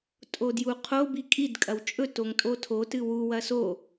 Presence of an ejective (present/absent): present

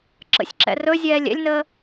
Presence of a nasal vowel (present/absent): absent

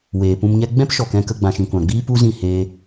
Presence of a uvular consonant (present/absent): absent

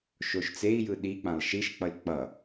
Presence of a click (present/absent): absent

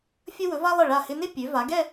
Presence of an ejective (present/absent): absent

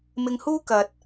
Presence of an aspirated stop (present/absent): absent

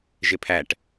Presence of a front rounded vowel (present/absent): absent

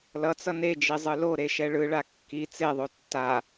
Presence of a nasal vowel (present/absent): absent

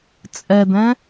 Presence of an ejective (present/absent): present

